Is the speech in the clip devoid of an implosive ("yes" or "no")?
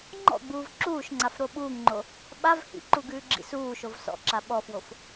no